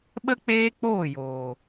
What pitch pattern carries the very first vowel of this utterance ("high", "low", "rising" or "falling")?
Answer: high